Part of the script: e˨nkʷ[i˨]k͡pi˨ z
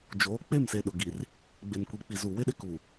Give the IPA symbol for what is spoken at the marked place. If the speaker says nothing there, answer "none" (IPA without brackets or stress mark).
i˨